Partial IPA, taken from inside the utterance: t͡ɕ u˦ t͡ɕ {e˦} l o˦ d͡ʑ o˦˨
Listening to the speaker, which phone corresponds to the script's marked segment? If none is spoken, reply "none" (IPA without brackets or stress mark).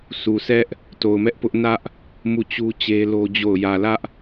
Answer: e˦